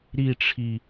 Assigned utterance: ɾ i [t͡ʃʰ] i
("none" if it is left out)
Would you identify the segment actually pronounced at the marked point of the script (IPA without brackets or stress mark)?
ʈ͡ʂʰ